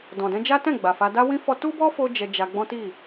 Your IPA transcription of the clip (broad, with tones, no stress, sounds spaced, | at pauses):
d ɔ̃˨ d ɛ̃˧ d͡ʒ a˦ t ɛ̃˦˨ ɡ͡b a˨ f a˧ d a˦ w ĩ˦ f ɔ˧ t u˦ b ɔ˦ f o˦ d͡ʒ ɛ˧ d͡ʒ a˧ ɡ͡b ɔ̃˦ t i˦˨